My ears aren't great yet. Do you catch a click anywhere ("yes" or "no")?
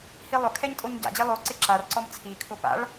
yes